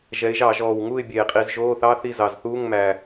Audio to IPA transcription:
ʒɛ˩˧ɪ̯ʒɑ˧˩˧ ʒɔː˨˩w ŋuː˥˨ɪ̯bʲeː˨˩qʼi˧˩˧z ʒoː˧˥˧ θɑ˧˥˧θi˥˨zɑ˨˩zθuː˧˥˧ŋ mæ˨˩

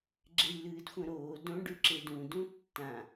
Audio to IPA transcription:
ɡ͡ǁejlɨːdxʷɐ̃ɾoː dõ ɖʉǁedũ dũtːã

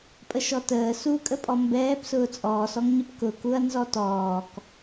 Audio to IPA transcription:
pʼəʃɔtəː sukʼəpʼɔ mbɛːpsʊː t͡sʼɔːsɔŋɲəp kʊkuɐ̯ nzɔtɔːk

